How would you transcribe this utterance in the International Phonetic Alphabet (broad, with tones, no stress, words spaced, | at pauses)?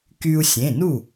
ky˧u̯sʲẽ˩˧˩nu˥˩